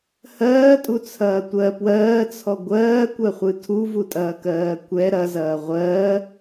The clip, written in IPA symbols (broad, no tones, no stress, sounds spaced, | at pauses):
h ɜː tʼ u t͡sʰ ɐː tʷ ɜ p w ɜː t͡sʰ ɔ ɡʷ ɜː kʷ ɜ χʷ ɨ tʰ u v u tʼ ɐː k ɜː kʷ ɛ ɾ ɐ z ɐː ʁʷ ɜ